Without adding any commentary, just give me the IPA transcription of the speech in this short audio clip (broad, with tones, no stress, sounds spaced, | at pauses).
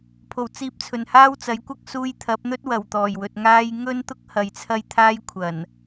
pʰ o˨˩ w t͡s iː˧ p̚ t͡sʰ ɵ˨˩ n h aː˥ w t͡s ɐ˨˥ j kʷ ɐ˥ k̚ s uː˧ j t̪ʰ ɐ˨˥ p̚ n̪ ɵ˥ t̚ w ɐ˨˩ w t̪ ɔː˨˩ j w ɵ˨ t̚ ŋ aː˥ j ŋ ɵ˥ n t̪ ʊ˥ k̚ h ɐ˨ j t͡sʰ ɐ˥ j t̪ʰ aː˥ j kʷʰ ɐ˨˩ n